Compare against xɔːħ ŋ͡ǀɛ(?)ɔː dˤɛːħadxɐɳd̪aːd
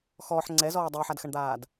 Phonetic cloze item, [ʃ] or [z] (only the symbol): z